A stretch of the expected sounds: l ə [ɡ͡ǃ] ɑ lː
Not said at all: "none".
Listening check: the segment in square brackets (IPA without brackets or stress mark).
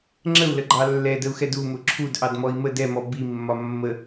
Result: ɡ͡ǃ